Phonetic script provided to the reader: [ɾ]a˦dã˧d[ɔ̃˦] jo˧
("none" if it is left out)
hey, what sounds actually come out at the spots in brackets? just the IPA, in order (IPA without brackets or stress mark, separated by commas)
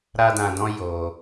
ɾ, ɔ̃˦